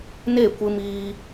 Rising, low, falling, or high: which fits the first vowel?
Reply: falling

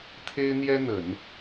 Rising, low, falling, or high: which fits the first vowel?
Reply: high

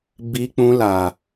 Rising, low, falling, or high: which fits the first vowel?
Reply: high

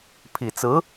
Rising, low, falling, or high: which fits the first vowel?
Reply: low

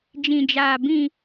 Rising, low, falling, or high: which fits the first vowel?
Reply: low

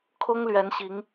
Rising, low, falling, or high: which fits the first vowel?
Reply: high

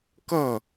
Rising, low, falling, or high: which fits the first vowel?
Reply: falling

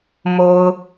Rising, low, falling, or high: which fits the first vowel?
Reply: low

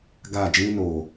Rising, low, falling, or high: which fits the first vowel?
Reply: falling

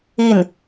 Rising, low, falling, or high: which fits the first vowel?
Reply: falling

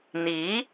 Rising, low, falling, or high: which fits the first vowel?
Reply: rising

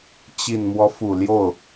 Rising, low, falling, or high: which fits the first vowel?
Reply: low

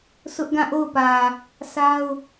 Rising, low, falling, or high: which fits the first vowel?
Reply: high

